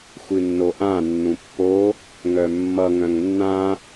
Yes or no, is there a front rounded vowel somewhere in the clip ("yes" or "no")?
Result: yes